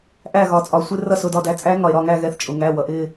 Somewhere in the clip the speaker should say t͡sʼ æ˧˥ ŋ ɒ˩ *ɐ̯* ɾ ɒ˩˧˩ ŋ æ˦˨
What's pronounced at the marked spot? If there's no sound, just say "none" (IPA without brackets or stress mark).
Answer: e̯